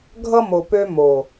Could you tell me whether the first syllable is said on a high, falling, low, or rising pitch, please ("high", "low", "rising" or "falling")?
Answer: high